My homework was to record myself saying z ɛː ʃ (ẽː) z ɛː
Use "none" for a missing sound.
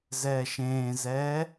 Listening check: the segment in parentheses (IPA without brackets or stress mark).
ẽː